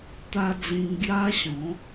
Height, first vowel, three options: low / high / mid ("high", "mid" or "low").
low